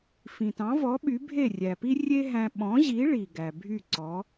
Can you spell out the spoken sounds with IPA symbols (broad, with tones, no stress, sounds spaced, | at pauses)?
f ĩ˩ t ɑ̃˩˥ v ɔ˩˥ ɓ y˩˥ bʱ e˥˩ rʲ æ˩ p i˥ rʲ e˥ ɦ æ̃˧ ɓ ɔ̃˩˥ ʑ i˩˥ ɭ i˩ ɡ æ˩ bʱ y˥˩ ǀ ɔ˩˥